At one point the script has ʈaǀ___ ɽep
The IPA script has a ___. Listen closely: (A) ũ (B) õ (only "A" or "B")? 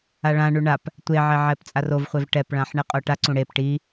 A